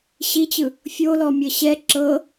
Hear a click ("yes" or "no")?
yes